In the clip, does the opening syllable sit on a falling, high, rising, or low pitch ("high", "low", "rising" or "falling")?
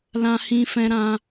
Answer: high